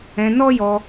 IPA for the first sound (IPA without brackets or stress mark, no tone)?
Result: ɛ̃